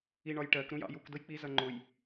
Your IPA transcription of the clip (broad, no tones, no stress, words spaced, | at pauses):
iɳɒjʈɜk ɾũjɑ̰juk dʊjk͡pi zʌŋ͡ǃʊj